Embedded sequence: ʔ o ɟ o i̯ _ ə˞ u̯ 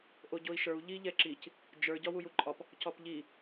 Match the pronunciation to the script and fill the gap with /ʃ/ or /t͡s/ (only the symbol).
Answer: ʃ